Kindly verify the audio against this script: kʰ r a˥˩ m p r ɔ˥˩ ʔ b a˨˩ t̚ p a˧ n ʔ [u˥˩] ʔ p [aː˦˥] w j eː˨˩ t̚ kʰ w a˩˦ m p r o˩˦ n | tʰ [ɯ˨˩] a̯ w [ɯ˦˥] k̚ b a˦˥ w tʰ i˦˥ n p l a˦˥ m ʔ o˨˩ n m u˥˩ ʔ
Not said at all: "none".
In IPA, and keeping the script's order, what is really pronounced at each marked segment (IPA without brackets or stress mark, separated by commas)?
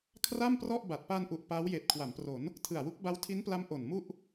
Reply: u˨˩, aː˦˥, ɯ˨˩, u˦˥